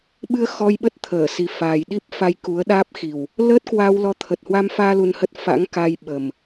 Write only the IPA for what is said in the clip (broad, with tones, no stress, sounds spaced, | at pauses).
ɓ ɨ˧ ə̯ x ɔ˧ j ɓ ə˦˥ t̚ t̪ʰ əː˧˩ s i˨˩ f aː˨˩ j ɗ i˦˥ p̚ f a˧ j k u˨˦ ə̯ ɗ aː˦˥ p̚ x i˨˩ w | l əː˦˥ t̚ k w a˧ w l ɔ˨˦ t̪ʰ ə˨˩ t̚ h w a˧ m f aː˧ l u˧ n h ə˦˥ t̚ f a̰˧˥ ŋ k a˧ j ɓ ə˨˩ m